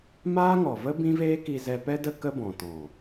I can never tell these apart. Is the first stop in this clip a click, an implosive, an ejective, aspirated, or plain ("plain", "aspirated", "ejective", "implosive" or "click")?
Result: plain